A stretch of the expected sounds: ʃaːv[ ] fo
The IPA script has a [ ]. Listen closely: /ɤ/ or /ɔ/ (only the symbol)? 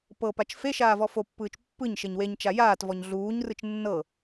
ɔ